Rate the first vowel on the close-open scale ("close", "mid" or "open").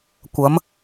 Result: open